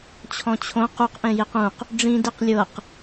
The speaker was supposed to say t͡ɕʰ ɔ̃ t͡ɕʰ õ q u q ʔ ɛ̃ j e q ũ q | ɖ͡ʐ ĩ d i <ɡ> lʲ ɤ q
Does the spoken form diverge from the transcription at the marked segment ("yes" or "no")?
yes